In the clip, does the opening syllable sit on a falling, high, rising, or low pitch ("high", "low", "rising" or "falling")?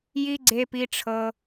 high